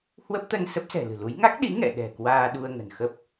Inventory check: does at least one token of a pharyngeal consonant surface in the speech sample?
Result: no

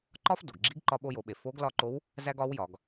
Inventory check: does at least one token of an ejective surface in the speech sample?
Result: no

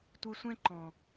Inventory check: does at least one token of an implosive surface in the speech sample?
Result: no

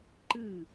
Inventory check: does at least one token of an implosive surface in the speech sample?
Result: no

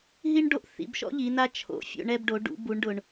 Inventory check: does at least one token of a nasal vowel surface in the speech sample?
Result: no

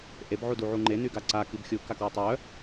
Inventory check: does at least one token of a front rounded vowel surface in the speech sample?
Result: yes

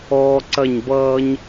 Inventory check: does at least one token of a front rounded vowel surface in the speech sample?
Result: no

